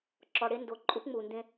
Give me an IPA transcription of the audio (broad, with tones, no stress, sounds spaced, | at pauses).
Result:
ǁ ɔ˨ ɽ e˦ n d o˨ ǃʼ u˦ p ŋ͡m u˨ n d ẽ˦